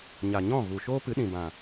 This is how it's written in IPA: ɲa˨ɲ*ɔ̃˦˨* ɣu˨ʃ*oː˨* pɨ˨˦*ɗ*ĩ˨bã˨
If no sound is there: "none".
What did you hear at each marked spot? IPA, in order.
ɔ̃˦˨, oː˦, ɗ

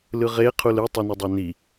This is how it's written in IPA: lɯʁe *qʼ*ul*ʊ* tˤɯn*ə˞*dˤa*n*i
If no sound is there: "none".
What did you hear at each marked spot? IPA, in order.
qʰ, ɯ, ʌ, n

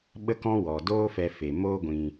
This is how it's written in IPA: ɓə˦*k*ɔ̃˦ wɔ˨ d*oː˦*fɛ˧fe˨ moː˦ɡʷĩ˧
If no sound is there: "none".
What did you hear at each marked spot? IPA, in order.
k, oː˦

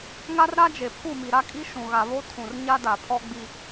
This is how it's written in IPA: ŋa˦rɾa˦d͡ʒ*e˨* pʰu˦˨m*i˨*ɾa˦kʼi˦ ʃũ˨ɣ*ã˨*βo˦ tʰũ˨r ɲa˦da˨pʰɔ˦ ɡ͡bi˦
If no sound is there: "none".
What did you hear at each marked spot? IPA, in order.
e˨, i˨, a˨

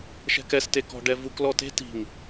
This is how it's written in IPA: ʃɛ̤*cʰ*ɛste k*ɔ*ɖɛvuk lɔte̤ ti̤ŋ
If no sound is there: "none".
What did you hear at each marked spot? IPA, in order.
k, ɔ̤

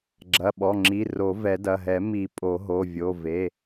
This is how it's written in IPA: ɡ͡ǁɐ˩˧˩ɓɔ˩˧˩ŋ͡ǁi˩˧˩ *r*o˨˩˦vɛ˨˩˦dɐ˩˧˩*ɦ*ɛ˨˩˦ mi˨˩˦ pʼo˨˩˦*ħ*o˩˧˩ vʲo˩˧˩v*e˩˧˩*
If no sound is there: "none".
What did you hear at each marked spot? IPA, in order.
r, ɦ, ɦ, e˩˧˩

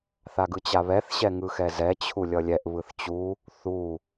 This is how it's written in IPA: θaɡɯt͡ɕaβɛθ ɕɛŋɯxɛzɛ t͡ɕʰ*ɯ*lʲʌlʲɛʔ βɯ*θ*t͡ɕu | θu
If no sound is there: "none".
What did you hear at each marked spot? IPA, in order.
u, θ

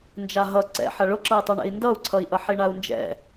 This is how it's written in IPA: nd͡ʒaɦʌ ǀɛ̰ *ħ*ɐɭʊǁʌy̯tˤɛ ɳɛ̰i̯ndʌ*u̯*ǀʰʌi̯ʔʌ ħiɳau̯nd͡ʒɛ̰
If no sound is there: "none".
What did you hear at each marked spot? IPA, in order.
ħ, u̯

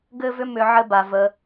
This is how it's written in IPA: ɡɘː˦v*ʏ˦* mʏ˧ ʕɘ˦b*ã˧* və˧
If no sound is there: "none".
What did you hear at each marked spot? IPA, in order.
ʏ˦, a˧

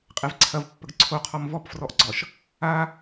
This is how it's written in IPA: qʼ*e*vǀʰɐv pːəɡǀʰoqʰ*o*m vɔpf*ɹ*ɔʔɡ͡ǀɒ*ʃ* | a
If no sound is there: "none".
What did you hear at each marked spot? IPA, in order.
e, ɔ, r, ʃ

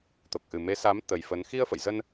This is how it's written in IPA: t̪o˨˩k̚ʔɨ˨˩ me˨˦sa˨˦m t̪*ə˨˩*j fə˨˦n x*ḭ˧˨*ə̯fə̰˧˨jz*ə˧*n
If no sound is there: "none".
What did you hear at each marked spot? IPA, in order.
ə˨˩, i˧, ə˧

